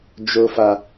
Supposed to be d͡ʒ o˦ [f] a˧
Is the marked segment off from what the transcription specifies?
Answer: no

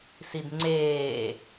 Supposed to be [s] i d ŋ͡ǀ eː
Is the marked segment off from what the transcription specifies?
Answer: no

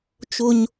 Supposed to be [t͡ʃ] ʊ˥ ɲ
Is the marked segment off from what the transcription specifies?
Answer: no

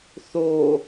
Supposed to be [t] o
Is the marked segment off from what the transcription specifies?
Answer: yes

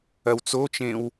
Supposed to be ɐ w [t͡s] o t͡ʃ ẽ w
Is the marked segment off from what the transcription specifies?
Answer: no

